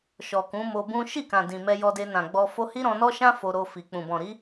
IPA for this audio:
ʃ ɔ˨ k ũ˨˦ m o˧ b ũ˦ ʃ i˦˨ k ã˨ d ĩ˨ m ɛ˧ j ɔ˧ d e˧ n ã˨ ɡ͡b ɔ˧ f o˦ h i˦ ɾ ɔ̃˧ n ɔ˦ ʃ ã˦ f o˧ ɾ o˧ f i˨ k͡p ũ˨ b ɔ̃˨ ɾ i˨˦

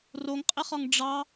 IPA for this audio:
r o ŋ qʼ ɪ χ ɒ ŋ ɖ͡ʐ ɑ

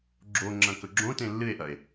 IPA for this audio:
ɡ͡ǁ o ŋ͡ǁ ɐ̃ k ɵ ɡ͡ǁ õ t ẽ lː ɨ e̯ ʔ ɐ e̯

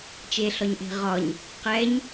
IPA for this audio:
t͡ʃ e ɬ ɒ ɲ ʔ e̤ ʁ ɒ ɲ | q ɛ ɲ

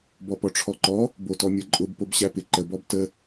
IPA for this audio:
b ɔ p ɔ ʈ͡ʂʰ ɔ ǃ ɔ | b o t ɔ mʲ ə˞ ǃʼ ʊ b p o b ɕ æ p ɪ ǃ ə b ɔ b t ə

